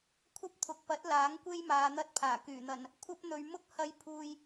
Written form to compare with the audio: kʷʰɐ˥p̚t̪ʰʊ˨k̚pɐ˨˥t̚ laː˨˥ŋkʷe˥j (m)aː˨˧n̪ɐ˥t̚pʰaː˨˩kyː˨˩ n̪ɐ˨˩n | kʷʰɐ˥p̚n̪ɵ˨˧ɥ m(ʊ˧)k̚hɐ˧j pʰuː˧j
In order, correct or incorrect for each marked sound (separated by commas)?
correct, incorrect